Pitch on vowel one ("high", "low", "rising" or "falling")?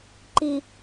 low